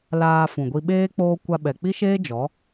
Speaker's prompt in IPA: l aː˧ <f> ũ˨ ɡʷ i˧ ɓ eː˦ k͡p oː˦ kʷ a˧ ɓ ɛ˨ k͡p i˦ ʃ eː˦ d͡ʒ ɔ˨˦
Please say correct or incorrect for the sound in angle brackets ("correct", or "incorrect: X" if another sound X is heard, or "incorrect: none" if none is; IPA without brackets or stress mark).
correct